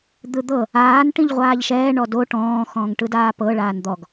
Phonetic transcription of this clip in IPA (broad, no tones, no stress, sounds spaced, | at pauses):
d̪ ɯ d̪ ɤ | aː n ʈ ĩ ʎ ʁʷ aː ʎ ʃ ɛː ɳ ɔ d o ʈ ɔ̃ː x ɔ̃ː ŋ ʈ ɯ d aː p ɤ ɭ aː n d̪ ɔ ɡ